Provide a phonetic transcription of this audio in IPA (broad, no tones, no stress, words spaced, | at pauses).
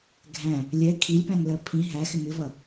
ɡʱæ̃ | lʲɛ kʰilʲpæ̃ŋlɜ pʰĩ ɦæxɪ mɪvʌ